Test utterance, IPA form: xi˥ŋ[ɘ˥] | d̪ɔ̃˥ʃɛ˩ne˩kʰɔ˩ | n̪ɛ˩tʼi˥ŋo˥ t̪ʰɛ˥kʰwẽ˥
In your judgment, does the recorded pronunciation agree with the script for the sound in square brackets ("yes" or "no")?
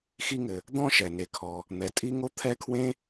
no